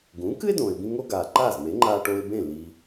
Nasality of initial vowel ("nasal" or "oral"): nasal